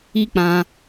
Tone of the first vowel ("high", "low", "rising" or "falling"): high